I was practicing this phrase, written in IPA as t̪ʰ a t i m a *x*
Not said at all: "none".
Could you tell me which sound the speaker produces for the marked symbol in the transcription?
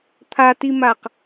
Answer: q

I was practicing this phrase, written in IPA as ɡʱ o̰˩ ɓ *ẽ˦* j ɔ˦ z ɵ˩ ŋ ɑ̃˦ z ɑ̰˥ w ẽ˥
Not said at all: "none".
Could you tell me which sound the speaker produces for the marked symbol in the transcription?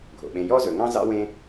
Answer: ẽ˨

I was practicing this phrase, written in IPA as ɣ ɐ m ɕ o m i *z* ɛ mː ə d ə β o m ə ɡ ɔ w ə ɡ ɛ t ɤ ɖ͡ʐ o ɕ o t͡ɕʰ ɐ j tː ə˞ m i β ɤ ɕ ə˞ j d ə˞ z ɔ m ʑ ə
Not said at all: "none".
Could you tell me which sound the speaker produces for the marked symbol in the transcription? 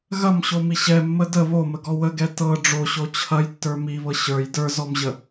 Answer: ɕ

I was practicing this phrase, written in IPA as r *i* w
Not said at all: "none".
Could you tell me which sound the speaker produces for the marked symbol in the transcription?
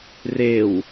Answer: e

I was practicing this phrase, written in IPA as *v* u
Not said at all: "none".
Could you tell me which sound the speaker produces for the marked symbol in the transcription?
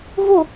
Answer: v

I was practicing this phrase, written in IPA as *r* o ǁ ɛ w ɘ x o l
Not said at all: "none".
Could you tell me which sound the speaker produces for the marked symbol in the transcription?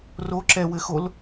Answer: r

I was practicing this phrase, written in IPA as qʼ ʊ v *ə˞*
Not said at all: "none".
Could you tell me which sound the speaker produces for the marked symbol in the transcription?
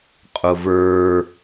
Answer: ə˞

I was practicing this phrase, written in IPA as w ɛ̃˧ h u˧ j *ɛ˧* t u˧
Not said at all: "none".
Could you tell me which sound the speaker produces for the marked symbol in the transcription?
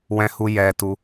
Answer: ɛ˧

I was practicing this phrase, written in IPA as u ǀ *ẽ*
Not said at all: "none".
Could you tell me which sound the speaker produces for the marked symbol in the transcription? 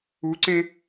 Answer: ẽ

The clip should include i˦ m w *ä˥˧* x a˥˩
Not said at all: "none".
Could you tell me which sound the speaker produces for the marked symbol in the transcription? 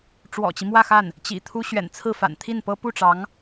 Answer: ä˥˧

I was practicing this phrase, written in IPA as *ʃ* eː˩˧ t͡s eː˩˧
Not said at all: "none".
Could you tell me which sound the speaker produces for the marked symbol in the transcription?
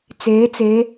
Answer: t͡s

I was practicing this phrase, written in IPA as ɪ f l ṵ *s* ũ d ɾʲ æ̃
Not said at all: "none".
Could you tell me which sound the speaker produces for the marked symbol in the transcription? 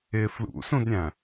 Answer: s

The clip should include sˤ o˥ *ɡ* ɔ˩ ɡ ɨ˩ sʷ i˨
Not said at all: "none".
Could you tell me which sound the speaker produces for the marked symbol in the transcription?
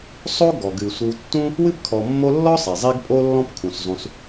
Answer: ɡ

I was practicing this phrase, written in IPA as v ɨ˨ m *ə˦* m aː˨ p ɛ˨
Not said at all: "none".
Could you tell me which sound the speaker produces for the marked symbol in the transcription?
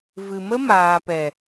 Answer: ə˦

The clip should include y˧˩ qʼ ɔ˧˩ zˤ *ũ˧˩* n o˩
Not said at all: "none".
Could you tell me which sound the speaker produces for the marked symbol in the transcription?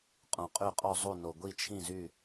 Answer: u˧˩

